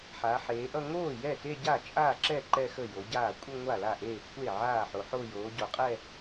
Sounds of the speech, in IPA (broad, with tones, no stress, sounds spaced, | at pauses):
ħ a˩˧ ħ eː˩˧ ʔ ʌ˥˧ ŋ oː˥˩ j ɛ˥˩ t e˥˧ ɟ a˥˩ t͡ʃʼ aː˥˩ ǁ ɛ˥˩ ǃ ɛ˥˧ x ə˥˩ j o˩˧ ɟ aː˥˩ kʷʼ ə˥˧ ŋʷ a˥˩ l a˥˩ ʔ eː˥˩ kʷʰ e˥˩ ʕ aː˥˩ ħ o˩˧ ħ o˥˧ j oː˩˧ ɟ o˩˧ qʼ ɛ˥˧